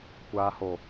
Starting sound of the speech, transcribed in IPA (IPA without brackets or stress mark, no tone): kʷ